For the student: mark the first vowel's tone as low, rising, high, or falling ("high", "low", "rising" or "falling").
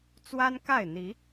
high